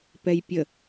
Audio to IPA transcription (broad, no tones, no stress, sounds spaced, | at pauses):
p ɛ j pʲ ə